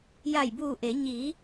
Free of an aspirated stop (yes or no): yes